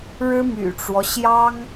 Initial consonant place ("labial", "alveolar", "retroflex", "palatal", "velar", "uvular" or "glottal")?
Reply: retroflex